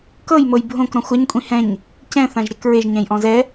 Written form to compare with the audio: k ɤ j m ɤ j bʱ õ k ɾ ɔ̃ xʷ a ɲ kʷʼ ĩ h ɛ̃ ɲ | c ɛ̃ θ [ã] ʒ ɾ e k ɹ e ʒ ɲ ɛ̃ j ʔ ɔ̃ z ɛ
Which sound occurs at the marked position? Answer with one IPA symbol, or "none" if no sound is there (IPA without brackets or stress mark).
ã